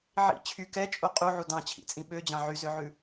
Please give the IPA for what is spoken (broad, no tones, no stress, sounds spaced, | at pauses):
ʕ ḭ t͡ɕʰ y k ɛ t͡ʃʼ o qʼ u ʕ u d ɑ̃ t͡ɕʰ ḭ t͡sʼ ĩ ɓ ø d͡ʑ ɑ̃ ʕ y z ø ʕ ʉ